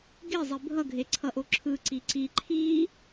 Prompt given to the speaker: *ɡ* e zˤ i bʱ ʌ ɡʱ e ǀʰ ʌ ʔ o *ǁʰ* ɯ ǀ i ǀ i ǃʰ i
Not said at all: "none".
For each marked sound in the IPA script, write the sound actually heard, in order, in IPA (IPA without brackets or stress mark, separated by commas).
ɡ, ǁʰ